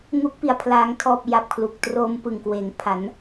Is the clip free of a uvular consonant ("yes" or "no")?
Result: yes